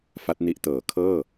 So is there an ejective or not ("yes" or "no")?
no